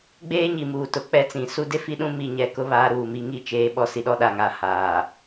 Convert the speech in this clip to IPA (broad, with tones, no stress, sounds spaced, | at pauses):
ɡ͡b eː˦ ɲ i˨ m uː˨ t ʊ˨ k͡p ɛ˦ t͡s ĩ˨ s u˦ d e˦ f i˦ ɗ ũ˦ m i˦˨ ɲ ɛ˦ k ʊ˦ β aː˦ ɾ uː˦˨ m i˦ ŋ i˦˨ t͡ʃ eː˦ ɓ ɔ˦ s i˦ ɗ ɔ˦ ɗ a˦˨ ŋ aː˦ h aː˨